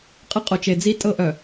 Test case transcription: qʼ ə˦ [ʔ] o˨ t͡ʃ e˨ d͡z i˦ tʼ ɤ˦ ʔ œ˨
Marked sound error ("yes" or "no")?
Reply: yes